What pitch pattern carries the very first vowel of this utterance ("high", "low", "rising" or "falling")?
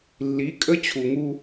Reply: rising